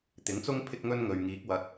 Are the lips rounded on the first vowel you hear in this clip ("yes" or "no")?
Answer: no